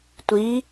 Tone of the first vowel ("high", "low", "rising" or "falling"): rising